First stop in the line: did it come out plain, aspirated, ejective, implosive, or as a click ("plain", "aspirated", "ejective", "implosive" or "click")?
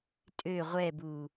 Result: ejective